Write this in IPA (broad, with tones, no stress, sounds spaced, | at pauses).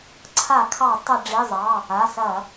ǀʰ a˧˩˧ kʰ ɑ˧˩˧ tˤ ɐ˧˩˧ ɖ͡ʐ i˩˧˩ zˤ ɑ˩˧˩ | a˩˧˩ s ɐ˧˩˧